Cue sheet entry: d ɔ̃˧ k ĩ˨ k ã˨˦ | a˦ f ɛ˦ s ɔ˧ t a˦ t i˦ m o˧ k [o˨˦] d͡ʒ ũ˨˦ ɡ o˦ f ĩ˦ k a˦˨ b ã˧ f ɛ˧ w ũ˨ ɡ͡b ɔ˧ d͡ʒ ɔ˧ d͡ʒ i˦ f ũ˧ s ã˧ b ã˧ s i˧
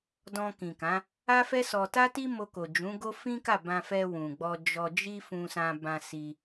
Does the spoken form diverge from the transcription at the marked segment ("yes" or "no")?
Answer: yes